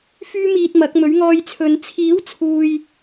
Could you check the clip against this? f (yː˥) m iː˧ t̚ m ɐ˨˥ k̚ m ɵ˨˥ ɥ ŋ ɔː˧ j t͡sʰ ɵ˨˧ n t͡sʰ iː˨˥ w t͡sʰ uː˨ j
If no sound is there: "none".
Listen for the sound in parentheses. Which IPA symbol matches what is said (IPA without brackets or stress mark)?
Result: yː˥